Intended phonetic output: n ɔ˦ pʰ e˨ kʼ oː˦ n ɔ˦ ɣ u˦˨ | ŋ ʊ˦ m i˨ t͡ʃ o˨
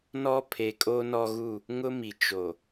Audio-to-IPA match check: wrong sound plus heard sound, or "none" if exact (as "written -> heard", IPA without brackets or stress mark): none